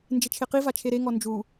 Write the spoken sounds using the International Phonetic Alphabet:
n d͡ʒ e t͡ʃʰ e q i v a t͡ʃʰ e ɾ e ŋ ɔ n d͡ʒ u

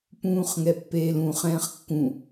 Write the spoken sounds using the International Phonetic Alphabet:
p ũː χ ŋ ɛ pː eː l ũ χ ɛ̃ː χ kː ũ

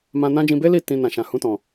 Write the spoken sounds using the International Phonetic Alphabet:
m ã˧ n ã˦ d͡ʒ ĩ˧ b e˦ l i˦˨ t ĩ˧ n ã˨ ʃ ã˨ h ũ˧ t ɔ̃˨

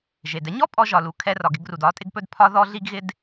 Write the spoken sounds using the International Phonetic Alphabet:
ʒ e˩ d ɛ˥ ɲ ɔ˥ pʼ ɔ˧ ʒ ɒ˩ l u˩ kʰ ɛ˧ r ɒ˩ ɡ ɪ˧ ɡ r u˩ d ɒ˧ tʼ ɪ˧ ɡ p ɵ˧ d pʰ ɒ˥ ð ɔ˥ ɮ i˧ ɡ ɣ ɪ˧ d

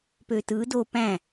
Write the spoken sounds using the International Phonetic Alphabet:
p ø t ɯ d o p æ̃

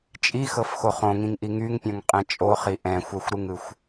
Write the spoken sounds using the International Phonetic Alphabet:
t͡ʃʼ i x ɤ f x o χ õ ŋ ĩ ŋ ʔ i ŋ y ŋ pʲ õ ŋ qʼ ɛ̃ t͡ʃʼ o χ i ʔ ɛ̃ xʷ ɛ xʷ ɾ ɯ ŋ ɯ xʷ

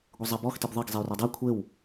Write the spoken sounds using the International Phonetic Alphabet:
ɡʷ ɘ zˤ ɐ b ɔ x t i b ðˤ ɘ ɡ zˤ e y̯ r ɔ dˤ a kʷʰ e w

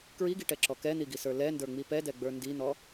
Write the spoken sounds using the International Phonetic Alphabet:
k ɹ i ɡ i ʈ ɛ ǁ ɔ k ɛ n̪ i ɡ i s ə˞ l ɛ n d ə˞ ŋ͡m i p ɛ d ɛ ɡ͡b ə˞ n d i n̪ ɔ

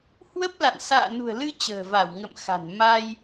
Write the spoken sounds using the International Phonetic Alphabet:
h w ə˦˥ p̚ l a̰˧˨ n s a̰ː˧˨ n ṳ˨˩ ə̯ l ɨ˧ t͡ɕ ə̤ː˨˩ v a˧˩ w ŋ ə̰˧˨ m x a̤˨˩ n m a˧ j

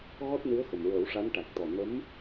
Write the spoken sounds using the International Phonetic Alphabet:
ɣ ɔ˦˥ t̚ n ɨ˧˥ ə̯ x ə˨˩ m ɹ əː˨˩˦ w ʂ a˧˥ n ʈ a˨˩ k̚ t̪ ɔ˨˩ n ə˧˥ m

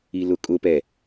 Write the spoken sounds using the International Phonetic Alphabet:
i l ʊ kʼ ʊ p ɛ

